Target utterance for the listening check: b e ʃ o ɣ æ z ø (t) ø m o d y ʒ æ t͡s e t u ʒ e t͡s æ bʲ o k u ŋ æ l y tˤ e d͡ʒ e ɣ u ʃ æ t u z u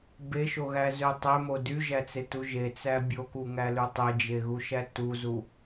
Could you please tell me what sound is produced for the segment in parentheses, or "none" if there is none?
tˤ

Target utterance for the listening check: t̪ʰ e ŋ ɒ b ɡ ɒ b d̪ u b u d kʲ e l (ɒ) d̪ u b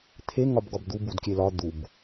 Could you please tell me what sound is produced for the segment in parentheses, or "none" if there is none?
ɒ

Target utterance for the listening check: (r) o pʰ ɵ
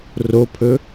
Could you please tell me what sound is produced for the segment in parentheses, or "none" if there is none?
r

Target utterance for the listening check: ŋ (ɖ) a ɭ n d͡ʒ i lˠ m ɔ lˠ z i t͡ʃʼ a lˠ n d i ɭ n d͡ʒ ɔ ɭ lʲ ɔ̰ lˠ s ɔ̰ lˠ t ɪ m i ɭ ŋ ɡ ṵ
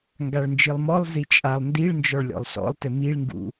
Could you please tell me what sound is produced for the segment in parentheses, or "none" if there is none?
ɡ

